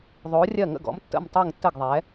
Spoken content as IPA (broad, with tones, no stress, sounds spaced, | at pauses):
ðˤ oː˩˧ rʲ ɜ˧˩ ŋ ə̰˧˩ ɡ ɔ̰˩˧ m tː ə̰˧˩ m tˤ e˧˩ ŋ tː ə˧˩ ɡ ðˤ ɛː˩˧